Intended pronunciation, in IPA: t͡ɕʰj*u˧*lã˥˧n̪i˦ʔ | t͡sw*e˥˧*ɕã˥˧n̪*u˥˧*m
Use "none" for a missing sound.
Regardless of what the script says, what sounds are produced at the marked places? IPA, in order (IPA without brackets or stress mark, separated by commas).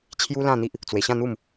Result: u˦, e˧, u˥˧